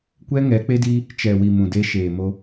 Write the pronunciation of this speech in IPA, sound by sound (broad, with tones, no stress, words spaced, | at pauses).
kʷɛ˦ŋɛ˨˦ k͡pe˦diː˦ | t͡ʃɛ˨wi˨ mũ˨deː˦ʃeː˨ mo˦